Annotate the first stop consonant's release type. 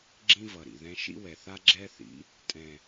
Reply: click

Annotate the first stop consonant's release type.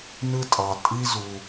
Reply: ejective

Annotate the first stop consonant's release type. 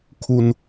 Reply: aspirated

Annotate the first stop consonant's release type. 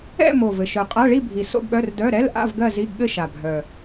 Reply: ejective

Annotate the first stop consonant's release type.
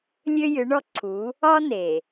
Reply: click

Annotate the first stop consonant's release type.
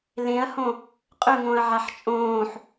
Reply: ejective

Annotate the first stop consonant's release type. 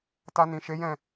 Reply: plain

